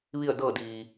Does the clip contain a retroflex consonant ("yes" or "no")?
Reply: no